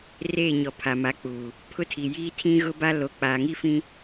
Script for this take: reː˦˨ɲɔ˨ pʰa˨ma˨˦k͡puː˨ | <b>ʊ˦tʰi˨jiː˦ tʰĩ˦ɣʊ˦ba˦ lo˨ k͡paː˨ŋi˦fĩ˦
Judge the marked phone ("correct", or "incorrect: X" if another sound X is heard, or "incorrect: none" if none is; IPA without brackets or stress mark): incorrect: pʰ